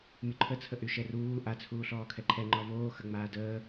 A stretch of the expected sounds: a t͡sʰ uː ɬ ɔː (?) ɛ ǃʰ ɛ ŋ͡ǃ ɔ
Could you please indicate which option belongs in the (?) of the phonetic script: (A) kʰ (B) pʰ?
A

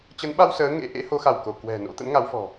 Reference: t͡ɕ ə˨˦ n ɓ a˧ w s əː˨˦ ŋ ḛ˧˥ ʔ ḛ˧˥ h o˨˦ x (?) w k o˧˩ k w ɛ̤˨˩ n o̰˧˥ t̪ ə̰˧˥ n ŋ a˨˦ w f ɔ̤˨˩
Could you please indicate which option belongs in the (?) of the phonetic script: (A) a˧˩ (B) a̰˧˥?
A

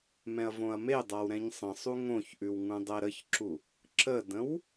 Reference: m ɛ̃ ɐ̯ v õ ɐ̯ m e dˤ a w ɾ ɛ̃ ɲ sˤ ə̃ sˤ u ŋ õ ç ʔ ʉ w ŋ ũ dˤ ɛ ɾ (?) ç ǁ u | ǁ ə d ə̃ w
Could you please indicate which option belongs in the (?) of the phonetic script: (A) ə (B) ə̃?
A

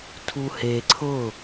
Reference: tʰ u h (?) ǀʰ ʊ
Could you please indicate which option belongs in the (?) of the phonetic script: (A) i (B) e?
B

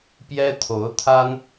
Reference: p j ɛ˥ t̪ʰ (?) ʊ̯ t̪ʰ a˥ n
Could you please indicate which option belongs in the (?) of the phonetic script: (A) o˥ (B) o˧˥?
B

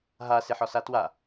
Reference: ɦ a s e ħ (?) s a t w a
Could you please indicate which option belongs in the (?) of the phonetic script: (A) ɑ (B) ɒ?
B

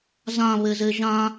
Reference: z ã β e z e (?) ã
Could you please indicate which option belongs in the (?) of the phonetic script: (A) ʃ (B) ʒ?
B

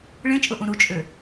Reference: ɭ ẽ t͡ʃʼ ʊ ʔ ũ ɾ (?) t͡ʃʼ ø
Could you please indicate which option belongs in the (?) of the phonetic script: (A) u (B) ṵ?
A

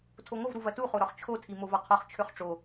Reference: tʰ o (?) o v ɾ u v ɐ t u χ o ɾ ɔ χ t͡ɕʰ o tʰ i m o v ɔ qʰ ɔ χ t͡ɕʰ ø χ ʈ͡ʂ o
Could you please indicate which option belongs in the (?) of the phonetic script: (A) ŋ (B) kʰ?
A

